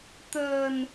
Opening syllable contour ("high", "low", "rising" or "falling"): low